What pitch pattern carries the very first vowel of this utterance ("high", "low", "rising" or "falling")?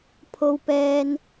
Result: high